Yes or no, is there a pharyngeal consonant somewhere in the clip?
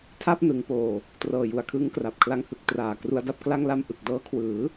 no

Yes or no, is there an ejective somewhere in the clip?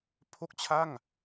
no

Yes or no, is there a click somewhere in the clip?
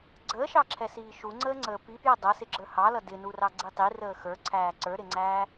yes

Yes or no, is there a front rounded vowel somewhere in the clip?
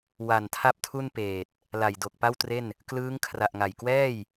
no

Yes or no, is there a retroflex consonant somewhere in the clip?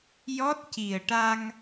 yes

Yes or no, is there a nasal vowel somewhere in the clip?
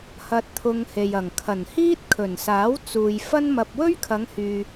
no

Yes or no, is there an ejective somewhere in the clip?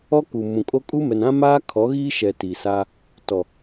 yes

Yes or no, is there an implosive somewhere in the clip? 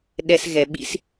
yes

